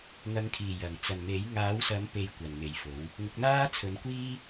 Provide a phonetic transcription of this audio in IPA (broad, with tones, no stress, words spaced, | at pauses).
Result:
ŋɐ˨˧ŋkʰiː˨˩ jɐ˨˩ŋ t͡sɐ˨˩n me˨˥j ŋaː˨˥wsɐ˨˥m pe˧j kʷɐ˨nme˨jfo˨˥w | ŋʊ˨˥k̚n̪aː˥t͡sʰɵ˨˥nkʷiː˥